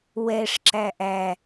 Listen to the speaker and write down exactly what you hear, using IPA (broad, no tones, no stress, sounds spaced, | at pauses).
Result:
w ɛ ʂ ǁ æ ʔ æ